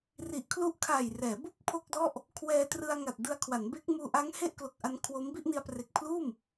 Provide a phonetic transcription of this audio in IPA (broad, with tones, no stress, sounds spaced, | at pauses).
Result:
r i˨˩ ʔ kʰ l u˦˥ ʔ kʰ aː˨˩ j r ɛː˩˦ b u˥˩ k̚ pʰ o˥˩ k̚ d ɔ˥˩ ʔ | kʰ w ɛː˧ t r ɯ˧ a̯ ŋ a˨˩ t̚ d ɯ˧ a̯ kʰ w a˩˦ n b e˦˥ k̚ m uː˧ ʔ a˦˥ ŋ h e˥˩ ʔ k l o˨˩ k̚ ʔ a˧ n kʰ w o˦˥ m b i˥˩ ʔ n i˧ a̯ p r e˨˩ k̚ pʰ l uː˥˩ m